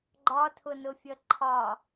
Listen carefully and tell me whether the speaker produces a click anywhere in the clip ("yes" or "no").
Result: yes